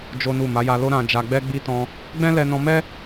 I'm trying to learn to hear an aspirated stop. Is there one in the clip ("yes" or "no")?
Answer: no